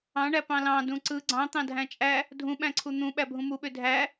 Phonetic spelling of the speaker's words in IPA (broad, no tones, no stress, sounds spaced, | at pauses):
ɑ̃ ɳ æ p ɑ̃ l ɑ̃ d ũ ǀ ɯ ɡ͡ǀ ɑ̃ t̪ ɑ̃ dʱ æ̃ t͡ʃʼ æ | dʱ ũ ɓ æ̃ ǀʰ u n̪ ũ ɓ æ bʱ ũ m u ɓ ø dʱ æ